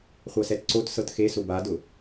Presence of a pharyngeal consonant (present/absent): absent